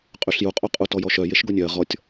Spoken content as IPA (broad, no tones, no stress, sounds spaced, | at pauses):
qʼ y ɬ j u qʼ o qʼ u t ɔ j ɔ ʃ œ j e ʃ ɡ o nʲ œ ɐ̯ ʁ ɔ tʲ